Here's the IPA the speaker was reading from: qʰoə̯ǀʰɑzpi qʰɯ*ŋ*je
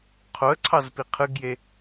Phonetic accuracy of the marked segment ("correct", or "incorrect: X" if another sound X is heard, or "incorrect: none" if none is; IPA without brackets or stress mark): incorrect: ɡ